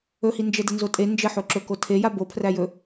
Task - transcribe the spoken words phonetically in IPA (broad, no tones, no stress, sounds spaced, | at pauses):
ɵ h i n d͡ʒ ə d ə n z o tʼ e n d͡ʒ ə ħ o ǁ ɵ k o tʰ e j a b o pʰ r æ j ɵ